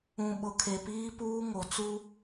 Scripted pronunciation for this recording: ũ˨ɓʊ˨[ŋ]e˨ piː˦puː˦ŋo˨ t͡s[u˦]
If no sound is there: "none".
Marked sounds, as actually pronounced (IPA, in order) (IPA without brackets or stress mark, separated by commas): kʰ, u˦